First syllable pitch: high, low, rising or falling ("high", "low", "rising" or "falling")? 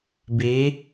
rising